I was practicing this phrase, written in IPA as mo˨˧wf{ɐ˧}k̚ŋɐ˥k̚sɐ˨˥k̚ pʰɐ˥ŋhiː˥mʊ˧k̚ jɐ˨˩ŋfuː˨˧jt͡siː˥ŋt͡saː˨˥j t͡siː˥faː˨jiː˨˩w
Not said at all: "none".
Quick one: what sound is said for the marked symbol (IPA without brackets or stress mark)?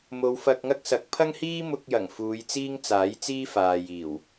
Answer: ɐ˧